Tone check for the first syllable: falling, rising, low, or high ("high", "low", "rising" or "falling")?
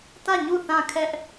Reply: falling